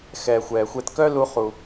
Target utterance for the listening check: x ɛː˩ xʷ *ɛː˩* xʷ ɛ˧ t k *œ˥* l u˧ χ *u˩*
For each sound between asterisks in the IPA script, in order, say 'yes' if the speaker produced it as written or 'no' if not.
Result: yes, yes, yes

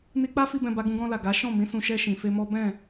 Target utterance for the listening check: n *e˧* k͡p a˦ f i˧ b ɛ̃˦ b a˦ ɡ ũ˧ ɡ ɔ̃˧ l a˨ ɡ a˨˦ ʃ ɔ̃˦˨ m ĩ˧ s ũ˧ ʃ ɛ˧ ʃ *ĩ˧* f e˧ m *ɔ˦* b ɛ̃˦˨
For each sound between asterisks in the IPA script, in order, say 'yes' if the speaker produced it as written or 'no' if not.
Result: no, no, yes

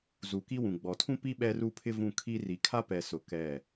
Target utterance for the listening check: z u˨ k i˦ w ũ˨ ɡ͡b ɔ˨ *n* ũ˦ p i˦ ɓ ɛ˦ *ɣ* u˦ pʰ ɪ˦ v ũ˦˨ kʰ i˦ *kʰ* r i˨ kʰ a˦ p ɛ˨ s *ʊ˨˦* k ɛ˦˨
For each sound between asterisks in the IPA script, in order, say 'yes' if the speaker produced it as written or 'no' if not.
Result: no, no, no, no

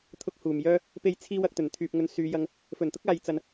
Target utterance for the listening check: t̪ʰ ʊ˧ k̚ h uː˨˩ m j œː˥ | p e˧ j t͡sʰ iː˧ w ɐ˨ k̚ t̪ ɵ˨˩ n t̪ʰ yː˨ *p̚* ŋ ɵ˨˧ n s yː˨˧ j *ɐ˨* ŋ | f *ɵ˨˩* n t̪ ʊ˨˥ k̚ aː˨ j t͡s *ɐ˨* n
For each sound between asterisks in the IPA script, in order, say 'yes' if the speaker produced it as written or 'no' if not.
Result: yes, no, yes, yes

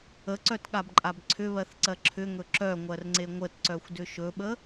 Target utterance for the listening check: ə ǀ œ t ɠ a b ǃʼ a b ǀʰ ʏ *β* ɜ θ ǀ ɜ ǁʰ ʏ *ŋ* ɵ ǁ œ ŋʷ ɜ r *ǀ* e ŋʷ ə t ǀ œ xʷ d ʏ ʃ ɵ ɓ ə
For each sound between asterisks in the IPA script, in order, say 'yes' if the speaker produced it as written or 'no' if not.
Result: yes, yes, no

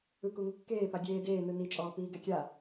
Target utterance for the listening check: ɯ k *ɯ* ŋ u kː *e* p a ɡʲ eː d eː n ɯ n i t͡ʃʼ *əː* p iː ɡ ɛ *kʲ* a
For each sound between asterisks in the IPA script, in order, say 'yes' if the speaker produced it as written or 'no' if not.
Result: no, no, no, yes

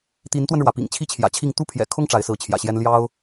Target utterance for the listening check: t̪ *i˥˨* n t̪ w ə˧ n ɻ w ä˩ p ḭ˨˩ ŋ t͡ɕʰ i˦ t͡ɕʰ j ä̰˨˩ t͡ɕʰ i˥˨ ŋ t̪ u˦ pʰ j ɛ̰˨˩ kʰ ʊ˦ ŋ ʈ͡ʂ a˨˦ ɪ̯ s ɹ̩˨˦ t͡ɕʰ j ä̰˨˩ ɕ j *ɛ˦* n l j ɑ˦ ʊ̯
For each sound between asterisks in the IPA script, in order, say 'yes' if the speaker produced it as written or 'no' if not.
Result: no, yes

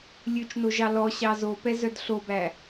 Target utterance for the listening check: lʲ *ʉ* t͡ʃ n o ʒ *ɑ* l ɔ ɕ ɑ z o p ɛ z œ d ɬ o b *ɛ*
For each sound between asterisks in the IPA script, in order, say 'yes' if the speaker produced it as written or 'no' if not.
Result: yes, yes, no

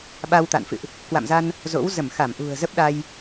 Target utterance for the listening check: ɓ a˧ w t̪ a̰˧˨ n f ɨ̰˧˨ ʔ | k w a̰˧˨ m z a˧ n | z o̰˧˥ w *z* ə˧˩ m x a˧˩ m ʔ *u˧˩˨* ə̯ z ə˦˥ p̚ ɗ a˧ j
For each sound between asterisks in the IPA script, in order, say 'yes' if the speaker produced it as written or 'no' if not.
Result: yes, no

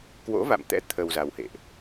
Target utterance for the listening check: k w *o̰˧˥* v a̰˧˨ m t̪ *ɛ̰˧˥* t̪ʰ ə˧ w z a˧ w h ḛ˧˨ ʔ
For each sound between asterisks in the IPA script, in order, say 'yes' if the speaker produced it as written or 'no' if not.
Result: yes, yes

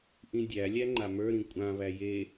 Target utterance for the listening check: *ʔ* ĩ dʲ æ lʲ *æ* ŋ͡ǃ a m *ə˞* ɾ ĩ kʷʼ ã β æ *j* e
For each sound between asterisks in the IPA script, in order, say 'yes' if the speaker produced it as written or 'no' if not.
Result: yes, yes, yes, yes

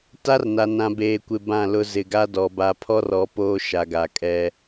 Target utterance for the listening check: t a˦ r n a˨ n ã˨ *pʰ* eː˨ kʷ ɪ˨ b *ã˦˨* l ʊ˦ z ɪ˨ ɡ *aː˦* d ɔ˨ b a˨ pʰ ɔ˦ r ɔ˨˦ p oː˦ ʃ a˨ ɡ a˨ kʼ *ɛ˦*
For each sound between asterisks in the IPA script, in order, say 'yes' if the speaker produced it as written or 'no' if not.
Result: no, yes, no, yes

